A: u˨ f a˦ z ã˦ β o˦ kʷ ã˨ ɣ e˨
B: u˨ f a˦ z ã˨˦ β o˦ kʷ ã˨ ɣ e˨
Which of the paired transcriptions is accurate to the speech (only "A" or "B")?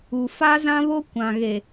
A